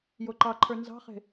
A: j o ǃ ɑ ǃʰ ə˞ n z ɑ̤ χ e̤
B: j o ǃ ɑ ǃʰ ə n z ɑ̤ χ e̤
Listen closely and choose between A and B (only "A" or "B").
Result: A